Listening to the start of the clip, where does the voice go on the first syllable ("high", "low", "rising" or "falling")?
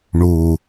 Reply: low